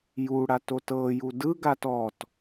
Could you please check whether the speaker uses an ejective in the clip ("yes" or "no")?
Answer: no